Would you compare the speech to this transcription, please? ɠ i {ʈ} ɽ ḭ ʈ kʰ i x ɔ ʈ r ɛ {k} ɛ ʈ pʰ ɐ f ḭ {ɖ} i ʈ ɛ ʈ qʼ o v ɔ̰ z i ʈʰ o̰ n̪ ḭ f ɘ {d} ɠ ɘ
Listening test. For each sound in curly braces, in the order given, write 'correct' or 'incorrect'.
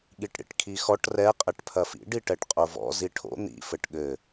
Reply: correct, incorrect, correct, incorrect

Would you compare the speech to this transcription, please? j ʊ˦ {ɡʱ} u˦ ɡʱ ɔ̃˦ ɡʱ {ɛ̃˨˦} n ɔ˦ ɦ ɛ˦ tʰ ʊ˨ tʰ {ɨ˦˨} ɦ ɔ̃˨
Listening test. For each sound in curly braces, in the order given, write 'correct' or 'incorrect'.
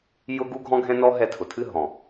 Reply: incorrect, incorrect, correct

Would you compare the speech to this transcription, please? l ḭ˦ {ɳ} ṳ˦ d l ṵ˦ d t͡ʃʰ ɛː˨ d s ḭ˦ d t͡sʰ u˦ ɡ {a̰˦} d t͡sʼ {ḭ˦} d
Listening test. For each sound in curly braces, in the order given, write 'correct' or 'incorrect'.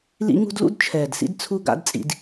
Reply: incorrect, correct, correct

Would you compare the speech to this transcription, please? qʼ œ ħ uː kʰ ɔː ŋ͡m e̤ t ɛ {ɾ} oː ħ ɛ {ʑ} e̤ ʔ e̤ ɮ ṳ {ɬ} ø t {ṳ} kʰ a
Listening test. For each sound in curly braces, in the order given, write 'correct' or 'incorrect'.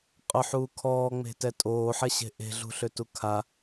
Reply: incorrect, incorrect, correct, incorrect

